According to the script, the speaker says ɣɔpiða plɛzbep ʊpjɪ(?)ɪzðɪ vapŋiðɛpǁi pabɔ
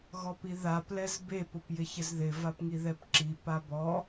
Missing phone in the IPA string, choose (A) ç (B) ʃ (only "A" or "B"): A